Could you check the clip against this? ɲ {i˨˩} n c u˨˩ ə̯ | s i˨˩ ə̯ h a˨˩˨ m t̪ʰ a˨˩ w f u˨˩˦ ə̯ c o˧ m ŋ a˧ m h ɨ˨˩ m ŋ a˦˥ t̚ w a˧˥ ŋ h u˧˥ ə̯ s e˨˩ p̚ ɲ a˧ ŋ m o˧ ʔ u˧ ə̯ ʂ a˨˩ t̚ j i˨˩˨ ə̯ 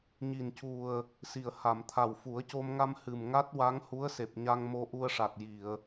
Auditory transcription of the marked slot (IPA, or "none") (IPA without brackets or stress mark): i˨˩